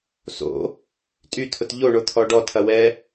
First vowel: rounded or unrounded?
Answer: rounded